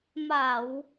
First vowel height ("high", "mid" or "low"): low